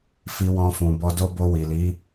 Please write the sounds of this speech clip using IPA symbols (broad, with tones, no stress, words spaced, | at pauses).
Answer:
fi˧wɔ̃˧fũ˨ bɔ˧do˦ bo˧wi˨li˨˦